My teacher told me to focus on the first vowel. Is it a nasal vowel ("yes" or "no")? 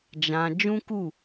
yes